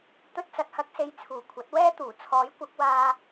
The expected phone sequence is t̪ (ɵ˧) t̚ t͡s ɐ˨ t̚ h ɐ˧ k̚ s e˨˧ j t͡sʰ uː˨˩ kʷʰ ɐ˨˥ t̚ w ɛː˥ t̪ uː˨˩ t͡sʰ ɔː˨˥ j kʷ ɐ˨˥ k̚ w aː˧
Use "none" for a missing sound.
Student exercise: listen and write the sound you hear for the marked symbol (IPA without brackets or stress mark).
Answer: ɵ˧